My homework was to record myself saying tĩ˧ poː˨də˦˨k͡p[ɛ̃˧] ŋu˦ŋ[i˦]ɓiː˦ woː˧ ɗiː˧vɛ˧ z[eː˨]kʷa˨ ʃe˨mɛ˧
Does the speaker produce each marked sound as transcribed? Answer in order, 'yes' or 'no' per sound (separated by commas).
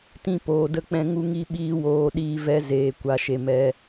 yes, yes, yes